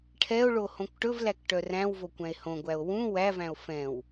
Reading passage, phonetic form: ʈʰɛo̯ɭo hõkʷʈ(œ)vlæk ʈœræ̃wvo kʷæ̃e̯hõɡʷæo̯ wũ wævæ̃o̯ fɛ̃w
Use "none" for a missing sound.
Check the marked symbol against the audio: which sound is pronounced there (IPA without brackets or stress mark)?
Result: ɵ